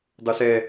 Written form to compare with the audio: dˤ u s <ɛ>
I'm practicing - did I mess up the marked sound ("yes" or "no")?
no